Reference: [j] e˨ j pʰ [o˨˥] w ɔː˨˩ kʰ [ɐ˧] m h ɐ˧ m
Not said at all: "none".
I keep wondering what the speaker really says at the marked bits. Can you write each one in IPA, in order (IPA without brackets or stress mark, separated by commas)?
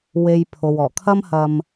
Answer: w, o˨, ɐ˥